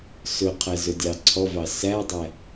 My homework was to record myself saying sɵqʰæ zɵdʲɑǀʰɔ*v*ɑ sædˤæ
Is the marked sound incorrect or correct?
correct